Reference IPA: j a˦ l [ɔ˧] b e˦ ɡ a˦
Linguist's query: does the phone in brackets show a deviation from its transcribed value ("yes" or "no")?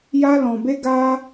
yes